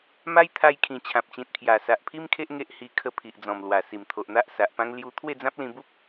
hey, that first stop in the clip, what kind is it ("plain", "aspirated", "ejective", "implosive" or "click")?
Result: aspirated